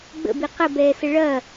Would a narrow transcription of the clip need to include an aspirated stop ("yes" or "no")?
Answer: no